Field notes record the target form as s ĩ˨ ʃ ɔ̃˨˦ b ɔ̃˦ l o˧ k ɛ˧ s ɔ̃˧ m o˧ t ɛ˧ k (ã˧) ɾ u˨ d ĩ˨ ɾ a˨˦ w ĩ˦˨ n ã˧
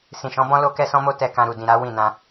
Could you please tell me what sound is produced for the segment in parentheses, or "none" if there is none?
ã˧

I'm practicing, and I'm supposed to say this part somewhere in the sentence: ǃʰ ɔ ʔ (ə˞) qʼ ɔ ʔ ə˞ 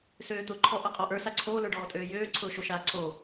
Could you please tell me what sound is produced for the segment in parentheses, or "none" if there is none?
ʌ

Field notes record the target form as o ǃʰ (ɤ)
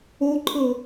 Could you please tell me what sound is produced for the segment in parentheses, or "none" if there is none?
ɤ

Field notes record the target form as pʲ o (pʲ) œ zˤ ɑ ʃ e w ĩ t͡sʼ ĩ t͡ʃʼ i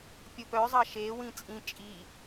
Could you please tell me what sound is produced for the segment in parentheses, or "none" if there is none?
p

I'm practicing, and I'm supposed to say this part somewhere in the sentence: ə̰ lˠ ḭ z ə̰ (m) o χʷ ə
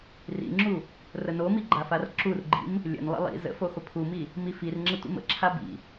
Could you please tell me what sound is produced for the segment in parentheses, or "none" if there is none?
f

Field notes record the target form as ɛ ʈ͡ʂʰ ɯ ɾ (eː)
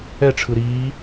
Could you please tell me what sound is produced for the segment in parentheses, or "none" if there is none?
iː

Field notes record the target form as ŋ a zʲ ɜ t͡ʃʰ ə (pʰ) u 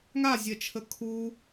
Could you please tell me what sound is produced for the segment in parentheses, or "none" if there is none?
kʰ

